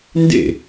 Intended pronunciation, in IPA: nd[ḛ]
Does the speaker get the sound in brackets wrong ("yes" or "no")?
no